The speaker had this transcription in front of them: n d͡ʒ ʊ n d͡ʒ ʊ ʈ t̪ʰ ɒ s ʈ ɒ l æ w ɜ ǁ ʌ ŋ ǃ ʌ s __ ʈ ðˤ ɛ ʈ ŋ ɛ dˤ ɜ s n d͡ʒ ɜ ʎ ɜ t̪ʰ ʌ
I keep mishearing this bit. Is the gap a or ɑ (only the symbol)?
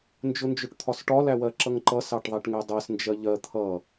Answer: ɑ